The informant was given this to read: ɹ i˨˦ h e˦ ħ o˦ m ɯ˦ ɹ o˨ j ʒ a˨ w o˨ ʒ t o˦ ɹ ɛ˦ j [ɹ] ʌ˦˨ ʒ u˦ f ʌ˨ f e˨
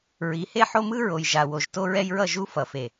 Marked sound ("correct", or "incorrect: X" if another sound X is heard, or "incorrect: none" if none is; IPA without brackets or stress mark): correct